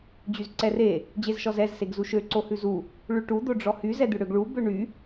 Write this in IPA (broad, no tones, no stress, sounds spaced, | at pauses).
d͡ʑ y z ǀ ɛ r e | d͡ʑ e z ʃ ɔ z ɛ z s e ɡ z u ʃ ø ǀ o h ʉ z u | ɭ ʉ ʈ u d̪ o ɖ͡ʐ ɔ h y z ɛ d̪ ʉ ɽ ø ɡ ɭ u b ø ɳ y